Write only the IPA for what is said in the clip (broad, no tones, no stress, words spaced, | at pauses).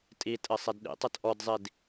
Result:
tʼitʼɘ sˤedɗḭtˤɘt ʔɔdzˤid